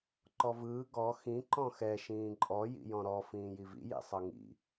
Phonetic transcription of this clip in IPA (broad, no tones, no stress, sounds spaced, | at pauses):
ǃ ɔ v ɯː ɡ ɔ x ĩ ǃ ɔ̃ x ɛ ʃ ĩː ǃʼ ɔ j ḭ j ɔ̃ ɾ ɔ f ĩː j i v ḭ j ḭ sˤ ɤ ŋ ḭ